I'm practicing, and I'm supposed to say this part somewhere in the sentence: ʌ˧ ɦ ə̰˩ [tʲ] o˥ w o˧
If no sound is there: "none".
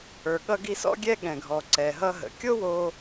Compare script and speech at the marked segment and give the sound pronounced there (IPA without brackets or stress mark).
kʲ